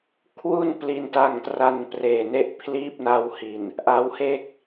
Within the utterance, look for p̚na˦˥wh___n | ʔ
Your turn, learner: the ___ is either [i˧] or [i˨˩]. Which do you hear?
i˨˩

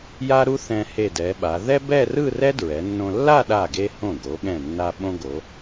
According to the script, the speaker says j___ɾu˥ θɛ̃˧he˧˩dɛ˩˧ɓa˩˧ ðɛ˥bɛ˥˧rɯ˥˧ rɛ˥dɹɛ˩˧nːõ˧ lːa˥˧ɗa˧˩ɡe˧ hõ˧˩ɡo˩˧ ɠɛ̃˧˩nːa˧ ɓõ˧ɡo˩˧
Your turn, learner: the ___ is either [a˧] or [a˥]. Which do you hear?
a˥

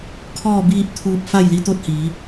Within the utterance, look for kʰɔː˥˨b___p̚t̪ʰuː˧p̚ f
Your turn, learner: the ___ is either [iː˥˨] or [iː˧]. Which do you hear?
iː˥˨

